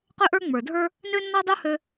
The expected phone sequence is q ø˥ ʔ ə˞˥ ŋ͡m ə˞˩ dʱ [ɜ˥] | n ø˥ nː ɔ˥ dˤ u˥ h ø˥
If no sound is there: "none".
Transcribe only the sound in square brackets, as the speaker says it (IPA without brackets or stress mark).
ə˞˥